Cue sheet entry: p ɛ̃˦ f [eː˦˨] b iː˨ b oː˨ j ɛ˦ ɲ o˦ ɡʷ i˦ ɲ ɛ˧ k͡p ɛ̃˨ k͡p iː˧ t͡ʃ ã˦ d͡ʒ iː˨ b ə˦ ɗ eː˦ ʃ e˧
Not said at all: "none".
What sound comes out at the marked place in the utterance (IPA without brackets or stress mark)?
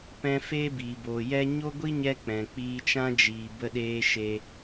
eː˦